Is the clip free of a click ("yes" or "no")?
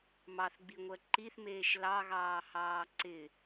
no